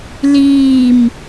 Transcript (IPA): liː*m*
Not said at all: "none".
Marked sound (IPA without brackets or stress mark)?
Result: m